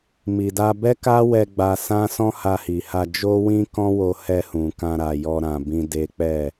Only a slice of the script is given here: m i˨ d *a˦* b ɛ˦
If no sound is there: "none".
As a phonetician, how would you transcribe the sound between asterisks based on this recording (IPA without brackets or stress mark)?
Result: a˧